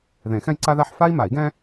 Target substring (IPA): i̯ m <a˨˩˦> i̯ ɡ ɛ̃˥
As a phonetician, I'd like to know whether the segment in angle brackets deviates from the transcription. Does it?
no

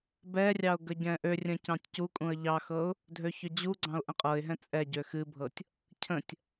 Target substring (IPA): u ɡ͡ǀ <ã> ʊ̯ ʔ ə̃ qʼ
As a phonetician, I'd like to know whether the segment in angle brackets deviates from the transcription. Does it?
yes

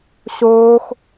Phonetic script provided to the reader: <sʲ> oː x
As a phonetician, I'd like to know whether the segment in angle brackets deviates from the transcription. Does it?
yes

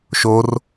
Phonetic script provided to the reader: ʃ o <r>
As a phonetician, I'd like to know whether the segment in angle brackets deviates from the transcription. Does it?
no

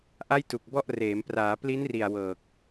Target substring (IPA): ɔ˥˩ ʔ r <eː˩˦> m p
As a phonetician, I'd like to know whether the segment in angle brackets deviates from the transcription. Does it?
no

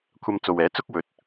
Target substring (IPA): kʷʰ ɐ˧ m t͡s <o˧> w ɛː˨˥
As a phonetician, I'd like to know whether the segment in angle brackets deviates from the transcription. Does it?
yes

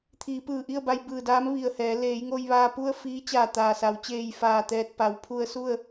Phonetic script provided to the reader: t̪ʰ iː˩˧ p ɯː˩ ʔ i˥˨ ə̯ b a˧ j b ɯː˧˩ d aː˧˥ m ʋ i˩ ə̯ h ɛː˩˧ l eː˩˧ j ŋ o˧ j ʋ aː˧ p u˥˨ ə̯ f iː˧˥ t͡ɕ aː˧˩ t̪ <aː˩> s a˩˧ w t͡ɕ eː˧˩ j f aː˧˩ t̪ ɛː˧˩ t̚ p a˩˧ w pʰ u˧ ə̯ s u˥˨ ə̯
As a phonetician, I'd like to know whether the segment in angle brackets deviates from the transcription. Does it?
no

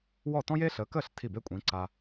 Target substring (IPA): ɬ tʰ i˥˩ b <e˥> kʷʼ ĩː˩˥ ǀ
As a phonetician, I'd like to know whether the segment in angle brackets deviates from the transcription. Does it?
no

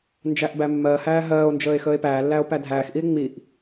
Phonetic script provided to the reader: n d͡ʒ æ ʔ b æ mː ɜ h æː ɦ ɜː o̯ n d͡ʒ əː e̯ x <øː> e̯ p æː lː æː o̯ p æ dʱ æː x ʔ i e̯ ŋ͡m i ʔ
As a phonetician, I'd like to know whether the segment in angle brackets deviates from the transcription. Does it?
yes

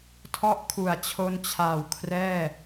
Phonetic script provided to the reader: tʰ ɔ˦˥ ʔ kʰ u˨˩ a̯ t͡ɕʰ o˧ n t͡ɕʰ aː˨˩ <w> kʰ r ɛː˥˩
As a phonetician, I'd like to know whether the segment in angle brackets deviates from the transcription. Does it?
no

